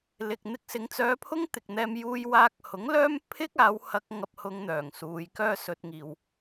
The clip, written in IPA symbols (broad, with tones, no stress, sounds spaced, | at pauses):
l ɪ˨ k̚ n̪ ɪ˧ k̚ s ɪ˨˧ ŋ t͡s œː˧ pʰ ʊ˥ ŋ t̪ ɪ˨ k̚ n̪ ɛː˧ m j uː˧ j w aː˧ k̚ h ʊ˨˥ ŋ l œː˥ m pʰ ɪ˥ k̚ aː˨˧ w h ɐ˧ k̚ ŋ ɐ˧ p̚ h ʊ˧ ŋ n̪ œː˨˩ ŋ s uː˨˧ j k œː˥ s ɵ˧ t̚ ŋ iː˨ w